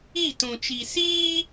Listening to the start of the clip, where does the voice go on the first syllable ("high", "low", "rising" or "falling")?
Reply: falling